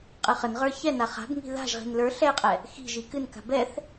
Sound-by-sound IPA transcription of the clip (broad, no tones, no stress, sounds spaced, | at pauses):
qʼ ɨ χ ə n ʁ ə˞ ç ɛ n a χ a̤ b ŋ i̤ ð a̤ ʒ ʁ i̤ n l ə˞ ɬ ɛ qʼ ɛ | x i̤ ʒ i k ɨ n k a̤ b ɛ θ